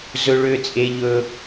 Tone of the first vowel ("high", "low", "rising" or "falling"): high